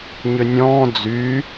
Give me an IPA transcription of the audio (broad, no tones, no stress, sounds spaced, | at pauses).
ɲ ʏ nʲ ɔ̃ː d͡z y